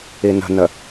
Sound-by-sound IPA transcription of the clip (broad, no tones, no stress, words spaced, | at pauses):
inə̤nə